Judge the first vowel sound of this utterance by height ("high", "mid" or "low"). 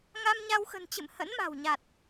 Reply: low